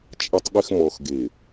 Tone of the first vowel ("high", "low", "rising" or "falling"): low